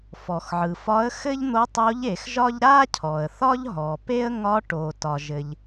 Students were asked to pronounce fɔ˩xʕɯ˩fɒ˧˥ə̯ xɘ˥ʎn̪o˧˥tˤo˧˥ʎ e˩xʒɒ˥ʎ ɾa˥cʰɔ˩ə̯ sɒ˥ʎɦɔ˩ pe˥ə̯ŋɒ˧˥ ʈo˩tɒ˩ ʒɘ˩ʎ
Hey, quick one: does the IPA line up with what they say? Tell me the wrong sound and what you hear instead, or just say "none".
s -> θ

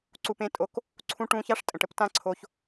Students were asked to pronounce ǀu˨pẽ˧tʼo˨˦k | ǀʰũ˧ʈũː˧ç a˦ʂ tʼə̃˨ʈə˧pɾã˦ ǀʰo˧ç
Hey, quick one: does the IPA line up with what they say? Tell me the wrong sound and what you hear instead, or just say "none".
ɾ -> t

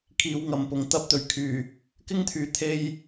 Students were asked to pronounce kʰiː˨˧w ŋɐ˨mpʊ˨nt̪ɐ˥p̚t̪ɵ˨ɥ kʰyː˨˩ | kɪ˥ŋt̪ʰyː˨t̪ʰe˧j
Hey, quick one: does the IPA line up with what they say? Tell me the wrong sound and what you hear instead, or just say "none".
n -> ŋ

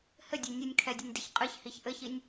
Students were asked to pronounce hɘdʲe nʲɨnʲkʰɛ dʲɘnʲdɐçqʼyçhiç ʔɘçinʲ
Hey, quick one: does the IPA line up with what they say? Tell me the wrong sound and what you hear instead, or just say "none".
y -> ɨ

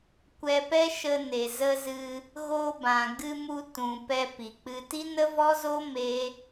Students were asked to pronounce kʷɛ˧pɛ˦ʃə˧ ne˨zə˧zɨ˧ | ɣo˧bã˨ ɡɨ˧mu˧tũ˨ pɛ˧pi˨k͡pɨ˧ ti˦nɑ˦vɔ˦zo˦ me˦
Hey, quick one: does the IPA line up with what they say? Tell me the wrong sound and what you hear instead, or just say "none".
ɑ˦ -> ə˦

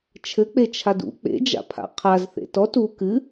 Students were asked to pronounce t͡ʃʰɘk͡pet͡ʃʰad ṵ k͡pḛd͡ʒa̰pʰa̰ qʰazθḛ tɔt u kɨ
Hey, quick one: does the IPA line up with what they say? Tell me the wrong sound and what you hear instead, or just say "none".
none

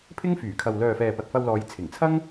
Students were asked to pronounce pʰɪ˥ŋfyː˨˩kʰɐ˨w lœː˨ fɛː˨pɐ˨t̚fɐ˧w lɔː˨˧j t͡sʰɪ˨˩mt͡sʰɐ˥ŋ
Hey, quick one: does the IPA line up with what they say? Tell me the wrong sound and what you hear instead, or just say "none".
m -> ŋ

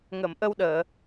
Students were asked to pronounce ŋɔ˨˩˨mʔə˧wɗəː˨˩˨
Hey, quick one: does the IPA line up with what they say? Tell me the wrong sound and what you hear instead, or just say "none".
ɔ˨˩˨ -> ə˨˩˨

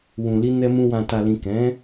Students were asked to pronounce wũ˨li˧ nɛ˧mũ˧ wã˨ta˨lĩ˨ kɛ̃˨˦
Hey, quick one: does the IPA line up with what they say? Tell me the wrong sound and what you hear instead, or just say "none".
none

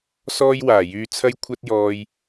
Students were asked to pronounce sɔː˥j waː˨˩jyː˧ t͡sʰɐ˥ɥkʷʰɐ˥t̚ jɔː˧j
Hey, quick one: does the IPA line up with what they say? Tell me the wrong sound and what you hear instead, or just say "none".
ɥ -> j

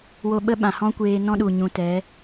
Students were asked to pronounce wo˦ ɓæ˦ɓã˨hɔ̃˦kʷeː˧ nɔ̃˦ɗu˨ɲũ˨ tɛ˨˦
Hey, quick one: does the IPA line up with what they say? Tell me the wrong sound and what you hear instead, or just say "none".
æ˦ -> ə˦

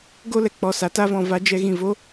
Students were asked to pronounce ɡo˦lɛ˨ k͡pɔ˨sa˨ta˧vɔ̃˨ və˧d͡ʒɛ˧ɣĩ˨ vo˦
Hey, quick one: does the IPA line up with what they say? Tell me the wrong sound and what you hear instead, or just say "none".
ə˧ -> a˧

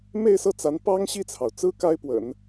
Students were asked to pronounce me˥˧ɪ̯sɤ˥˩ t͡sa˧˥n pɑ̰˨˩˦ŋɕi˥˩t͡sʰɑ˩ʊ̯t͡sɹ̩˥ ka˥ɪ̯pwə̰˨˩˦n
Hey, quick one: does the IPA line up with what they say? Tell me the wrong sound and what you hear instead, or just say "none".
ɑ̰˨˩˦ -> ɑ˥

